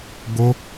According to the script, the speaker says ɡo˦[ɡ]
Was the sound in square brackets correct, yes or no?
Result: no